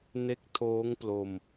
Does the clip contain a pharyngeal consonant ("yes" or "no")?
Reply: no